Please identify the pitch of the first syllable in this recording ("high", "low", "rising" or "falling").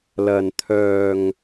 low